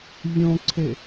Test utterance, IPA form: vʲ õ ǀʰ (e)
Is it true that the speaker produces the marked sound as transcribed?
yes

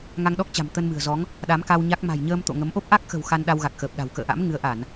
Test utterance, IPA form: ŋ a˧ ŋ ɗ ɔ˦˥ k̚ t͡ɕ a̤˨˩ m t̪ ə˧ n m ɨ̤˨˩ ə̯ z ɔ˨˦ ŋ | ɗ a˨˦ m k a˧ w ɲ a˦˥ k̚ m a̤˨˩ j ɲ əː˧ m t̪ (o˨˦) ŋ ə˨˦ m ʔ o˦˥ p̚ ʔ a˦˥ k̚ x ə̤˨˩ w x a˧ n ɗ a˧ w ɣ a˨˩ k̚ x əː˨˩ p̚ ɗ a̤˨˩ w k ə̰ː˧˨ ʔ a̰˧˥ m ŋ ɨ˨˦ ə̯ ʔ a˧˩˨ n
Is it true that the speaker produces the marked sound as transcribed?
no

